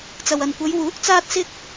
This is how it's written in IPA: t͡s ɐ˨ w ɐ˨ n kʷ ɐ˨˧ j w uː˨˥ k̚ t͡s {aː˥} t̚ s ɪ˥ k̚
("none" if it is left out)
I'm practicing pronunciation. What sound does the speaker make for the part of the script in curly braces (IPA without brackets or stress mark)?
aː˥